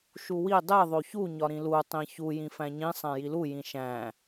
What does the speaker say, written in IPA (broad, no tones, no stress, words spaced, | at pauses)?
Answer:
ʃuwi dˤe ðˤoçu ɲɒɾĩlu tˤĩçu jĩfæ̃ɲĩ sˤæ̃jilu jĩʃæ̃